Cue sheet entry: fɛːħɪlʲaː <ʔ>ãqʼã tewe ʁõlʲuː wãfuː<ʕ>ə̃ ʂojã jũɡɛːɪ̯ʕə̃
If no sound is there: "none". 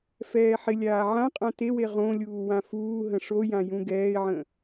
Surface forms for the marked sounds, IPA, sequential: ʕ, ɦ

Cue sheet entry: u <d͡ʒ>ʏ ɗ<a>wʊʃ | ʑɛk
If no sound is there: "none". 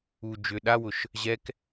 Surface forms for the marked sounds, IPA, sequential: d͡ʒ, a

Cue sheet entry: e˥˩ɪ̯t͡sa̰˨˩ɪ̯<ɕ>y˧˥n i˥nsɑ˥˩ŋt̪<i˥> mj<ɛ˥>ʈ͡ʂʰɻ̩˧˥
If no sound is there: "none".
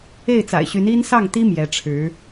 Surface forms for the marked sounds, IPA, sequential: ɕ, i˥, ɛ˧˥

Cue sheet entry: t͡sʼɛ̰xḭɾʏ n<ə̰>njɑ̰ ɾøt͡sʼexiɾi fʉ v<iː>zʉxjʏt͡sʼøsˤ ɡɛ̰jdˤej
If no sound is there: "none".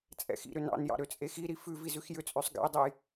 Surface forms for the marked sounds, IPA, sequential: ɑ̰, i

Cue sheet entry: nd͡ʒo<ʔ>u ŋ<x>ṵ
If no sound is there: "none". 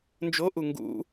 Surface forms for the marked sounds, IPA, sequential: ʔ, ɡ

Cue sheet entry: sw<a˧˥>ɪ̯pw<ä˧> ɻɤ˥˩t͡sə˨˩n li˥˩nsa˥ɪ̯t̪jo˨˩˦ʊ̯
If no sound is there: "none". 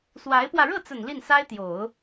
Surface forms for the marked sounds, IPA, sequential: a˧˥, ä˧

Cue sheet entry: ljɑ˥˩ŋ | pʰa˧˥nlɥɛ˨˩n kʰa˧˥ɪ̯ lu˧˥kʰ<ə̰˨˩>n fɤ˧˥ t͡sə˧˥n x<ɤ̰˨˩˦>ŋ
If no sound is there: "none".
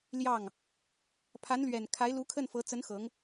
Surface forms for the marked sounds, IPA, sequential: ə˥˩, ɤ˧˥

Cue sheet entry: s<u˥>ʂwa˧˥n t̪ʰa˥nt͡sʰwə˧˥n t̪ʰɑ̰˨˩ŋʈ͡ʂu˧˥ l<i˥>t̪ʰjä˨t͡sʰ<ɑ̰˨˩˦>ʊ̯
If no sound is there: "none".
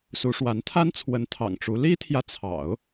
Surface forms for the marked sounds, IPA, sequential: u˧˥, i˥, ɑ̰˨˩˦

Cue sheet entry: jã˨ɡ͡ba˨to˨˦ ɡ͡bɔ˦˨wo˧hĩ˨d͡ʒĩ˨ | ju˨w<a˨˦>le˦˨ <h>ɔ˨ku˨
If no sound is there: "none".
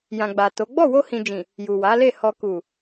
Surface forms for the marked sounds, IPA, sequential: a˨˦, h

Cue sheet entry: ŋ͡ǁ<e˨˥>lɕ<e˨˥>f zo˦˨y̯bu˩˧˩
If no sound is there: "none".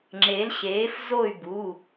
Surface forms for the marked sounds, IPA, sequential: e˨˥, eː˨˥

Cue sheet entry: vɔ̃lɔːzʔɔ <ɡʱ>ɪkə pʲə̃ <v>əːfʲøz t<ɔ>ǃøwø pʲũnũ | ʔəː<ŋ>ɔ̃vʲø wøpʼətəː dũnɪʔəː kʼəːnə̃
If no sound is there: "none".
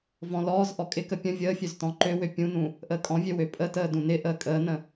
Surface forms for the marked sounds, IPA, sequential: kʼ, vʲ, ɔ̃, kʼ

